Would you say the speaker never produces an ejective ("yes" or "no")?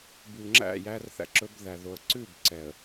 yes